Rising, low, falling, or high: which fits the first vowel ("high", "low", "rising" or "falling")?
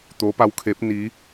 rising